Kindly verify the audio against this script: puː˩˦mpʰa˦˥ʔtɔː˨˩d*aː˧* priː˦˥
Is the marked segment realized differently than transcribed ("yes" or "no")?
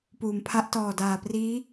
yes